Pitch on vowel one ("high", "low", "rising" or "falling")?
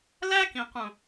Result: high